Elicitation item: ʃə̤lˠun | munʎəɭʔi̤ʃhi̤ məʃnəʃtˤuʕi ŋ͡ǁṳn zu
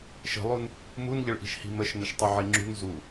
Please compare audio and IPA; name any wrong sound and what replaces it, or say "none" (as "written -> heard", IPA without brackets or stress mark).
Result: none